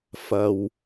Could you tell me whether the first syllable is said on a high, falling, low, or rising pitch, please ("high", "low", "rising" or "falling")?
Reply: low